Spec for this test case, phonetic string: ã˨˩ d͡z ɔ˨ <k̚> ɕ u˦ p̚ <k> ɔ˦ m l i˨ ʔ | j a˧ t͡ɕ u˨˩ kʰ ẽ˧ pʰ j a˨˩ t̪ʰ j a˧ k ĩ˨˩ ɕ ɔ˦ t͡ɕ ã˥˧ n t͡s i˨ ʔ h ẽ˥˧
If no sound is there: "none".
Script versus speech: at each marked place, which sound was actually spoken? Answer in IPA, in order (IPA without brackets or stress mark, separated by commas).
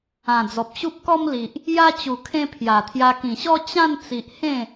p̚, k